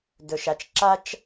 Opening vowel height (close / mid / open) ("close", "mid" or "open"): mid